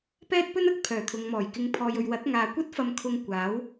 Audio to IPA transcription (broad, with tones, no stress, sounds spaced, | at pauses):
p ɛː˥ t̚ p ɵ˥ n ɐ˨ k̚ pʰ œː˨˩ t̪ʰ ʊ˨ ŋ m ɔː˨˩ j k ɪ˨˧ ŋ pʰ ɔː˨ j ɵ˨ ɥ w ɐ˨˥ t̚ ŋ aː˨ kʷ ɐ˥ t̚ f ɐ˧ m kʰ ʊ˧ ŋ kʷ aː˨˥ w